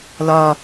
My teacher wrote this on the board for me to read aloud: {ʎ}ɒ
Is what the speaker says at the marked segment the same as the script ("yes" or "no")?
no